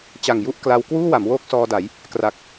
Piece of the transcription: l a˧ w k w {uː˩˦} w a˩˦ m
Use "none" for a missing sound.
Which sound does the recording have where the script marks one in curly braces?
uː˥˩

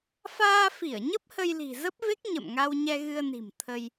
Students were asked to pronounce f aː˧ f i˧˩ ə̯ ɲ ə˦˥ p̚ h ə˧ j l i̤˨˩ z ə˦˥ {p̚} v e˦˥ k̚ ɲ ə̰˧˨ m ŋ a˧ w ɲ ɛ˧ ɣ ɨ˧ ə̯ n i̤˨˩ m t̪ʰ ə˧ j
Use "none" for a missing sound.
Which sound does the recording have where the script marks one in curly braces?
p̚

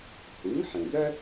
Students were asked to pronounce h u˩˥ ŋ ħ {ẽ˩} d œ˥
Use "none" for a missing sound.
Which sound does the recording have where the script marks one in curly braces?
ẽ˩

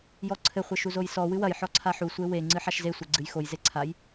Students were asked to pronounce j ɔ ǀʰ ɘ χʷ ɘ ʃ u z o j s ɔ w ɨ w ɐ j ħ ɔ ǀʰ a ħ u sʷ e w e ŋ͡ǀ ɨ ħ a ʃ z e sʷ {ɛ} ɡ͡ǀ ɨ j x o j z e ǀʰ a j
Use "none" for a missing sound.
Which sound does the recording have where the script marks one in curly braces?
ɛ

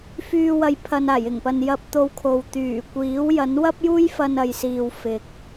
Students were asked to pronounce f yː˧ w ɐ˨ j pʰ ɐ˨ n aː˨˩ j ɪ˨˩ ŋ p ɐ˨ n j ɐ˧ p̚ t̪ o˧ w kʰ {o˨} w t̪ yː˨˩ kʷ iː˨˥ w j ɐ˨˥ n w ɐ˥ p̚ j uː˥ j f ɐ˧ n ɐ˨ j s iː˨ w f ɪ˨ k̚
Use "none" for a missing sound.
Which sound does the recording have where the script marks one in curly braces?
o˨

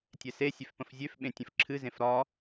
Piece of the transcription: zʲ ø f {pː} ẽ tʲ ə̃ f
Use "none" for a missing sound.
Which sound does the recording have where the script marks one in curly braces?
ɓ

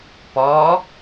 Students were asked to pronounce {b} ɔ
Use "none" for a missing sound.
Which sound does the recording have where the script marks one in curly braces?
p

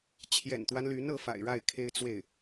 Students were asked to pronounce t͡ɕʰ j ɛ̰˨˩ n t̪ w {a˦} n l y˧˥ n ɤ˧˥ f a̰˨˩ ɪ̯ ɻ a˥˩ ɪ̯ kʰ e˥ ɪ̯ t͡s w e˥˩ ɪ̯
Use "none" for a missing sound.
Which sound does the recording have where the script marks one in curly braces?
a˦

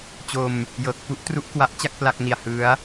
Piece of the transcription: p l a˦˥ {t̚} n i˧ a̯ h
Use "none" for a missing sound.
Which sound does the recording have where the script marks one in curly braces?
k̚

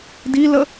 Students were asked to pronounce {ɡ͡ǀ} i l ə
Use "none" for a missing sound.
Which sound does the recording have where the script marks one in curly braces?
d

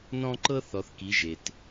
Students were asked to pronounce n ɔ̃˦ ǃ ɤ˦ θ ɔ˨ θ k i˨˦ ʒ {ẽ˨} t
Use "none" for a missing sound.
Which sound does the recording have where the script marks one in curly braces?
e˨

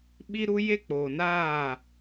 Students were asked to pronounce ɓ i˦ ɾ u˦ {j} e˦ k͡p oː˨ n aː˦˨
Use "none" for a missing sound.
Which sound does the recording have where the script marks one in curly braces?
j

